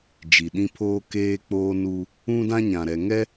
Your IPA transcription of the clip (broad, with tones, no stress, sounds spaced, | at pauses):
d͡ʒ i˨ ɗ ĩ˦ pʰ oː˦ k eː˦ k͡p oː˦ n u˦ | ũ˦ d ã˦ ɲ ã˨ ɾ ɛ˨ ŋ ɛ˦